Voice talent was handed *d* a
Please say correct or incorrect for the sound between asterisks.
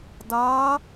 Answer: correct